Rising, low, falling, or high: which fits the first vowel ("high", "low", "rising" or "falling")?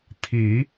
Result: rising